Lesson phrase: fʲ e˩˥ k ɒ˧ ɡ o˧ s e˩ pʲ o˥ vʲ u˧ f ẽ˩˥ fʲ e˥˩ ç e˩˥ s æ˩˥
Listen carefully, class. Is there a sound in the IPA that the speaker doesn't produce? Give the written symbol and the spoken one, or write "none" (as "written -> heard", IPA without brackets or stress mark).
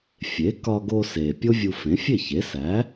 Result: none